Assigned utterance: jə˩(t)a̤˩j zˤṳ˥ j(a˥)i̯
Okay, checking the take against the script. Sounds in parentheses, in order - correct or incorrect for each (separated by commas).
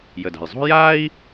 incorrect, correct